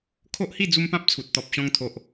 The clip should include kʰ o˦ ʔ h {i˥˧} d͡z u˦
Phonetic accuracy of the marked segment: correct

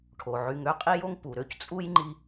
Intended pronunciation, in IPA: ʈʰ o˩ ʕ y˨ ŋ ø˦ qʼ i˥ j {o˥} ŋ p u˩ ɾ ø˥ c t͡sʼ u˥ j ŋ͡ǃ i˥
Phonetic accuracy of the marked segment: correct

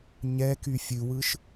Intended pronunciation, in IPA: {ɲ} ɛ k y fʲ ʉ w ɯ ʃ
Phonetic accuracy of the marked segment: correct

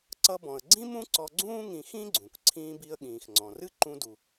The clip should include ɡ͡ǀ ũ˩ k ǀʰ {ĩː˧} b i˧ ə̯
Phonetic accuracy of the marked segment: correct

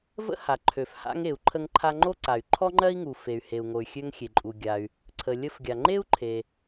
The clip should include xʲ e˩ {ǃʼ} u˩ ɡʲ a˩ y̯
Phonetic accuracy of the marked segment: correct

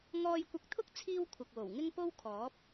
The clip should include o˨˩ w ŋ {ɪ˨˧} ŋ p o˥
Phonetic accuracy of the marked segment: incorrect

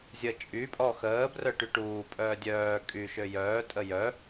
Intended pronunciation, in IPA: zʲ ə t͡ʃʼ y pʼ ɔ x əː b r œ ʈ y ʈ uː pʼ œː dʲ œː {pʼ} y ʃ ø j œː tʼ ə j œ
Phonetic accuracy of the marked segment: incorrect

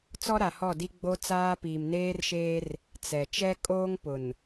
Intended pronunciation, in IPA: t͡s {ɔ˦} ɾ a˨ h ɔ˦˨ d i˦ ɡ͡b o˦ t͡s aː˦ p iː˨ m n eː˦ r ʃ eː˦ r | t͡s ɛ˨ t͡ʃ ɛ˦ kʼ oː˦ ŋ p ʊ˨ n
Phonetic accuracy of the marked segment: correct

